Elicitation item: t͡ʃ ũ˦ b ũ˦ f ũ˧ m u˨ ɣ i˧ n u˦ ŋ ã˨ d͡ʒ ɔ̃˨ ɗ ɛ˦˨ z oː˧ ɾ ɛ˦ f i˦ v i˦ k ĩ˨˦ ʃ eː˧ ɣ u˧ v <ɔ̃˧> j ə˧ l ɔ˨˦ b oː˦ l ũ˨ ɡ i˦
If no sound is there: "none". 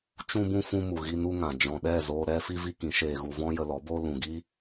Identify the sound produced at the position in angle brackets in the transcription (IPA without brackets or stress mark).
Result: ɔ̃˦